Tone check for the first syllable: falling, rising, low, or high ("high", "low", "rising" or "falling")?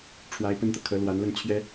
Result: rising